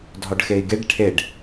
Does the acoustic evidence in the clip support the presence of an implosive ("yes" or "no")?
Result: no